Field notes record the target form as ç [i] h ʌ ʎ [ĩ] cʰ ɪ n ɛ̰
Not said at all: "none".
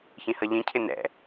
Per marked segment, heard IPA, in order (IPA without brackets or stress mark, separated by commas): ĩ, ĩ